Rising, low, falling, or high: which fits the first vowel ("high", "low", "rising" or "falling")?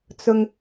high